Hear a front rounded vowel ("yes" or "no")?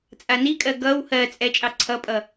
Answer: no